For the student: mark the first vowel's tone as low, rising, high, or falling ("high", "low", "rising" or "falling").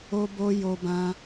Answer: high